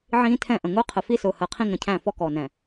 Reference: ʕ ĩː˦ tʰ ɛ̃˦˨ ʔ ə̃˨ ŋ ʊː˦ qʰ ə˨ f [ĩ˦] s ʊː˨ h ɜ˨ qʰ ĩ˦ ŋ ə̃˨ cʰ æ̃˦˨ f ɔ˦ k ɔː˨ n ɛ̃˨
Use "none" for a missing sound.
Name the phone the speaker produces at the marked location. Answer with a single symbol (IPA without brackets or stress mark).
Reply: i˦